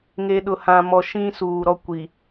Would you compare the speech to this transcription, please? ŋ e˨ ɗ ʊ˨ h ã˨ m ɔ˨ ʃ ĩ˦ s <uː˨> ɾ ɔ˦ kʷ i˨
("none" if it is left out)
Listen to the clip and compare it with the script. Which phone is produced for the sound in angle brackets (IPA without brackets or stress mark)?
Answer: uː˨